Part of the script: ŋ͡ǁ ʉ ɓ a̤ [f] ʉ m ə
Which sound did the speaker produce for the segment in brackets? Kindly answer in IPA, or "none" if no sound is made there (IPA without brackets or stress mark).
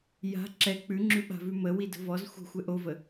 v